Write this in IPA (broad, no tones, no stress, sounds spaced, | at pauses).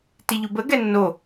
t i ʎ u b ə ɡ ɛ nː o